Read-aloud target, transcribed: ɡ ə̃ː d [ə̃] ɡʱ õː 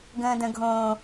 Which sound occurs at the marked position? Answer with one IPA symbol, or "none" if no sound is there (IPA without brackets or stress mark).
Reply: ə̃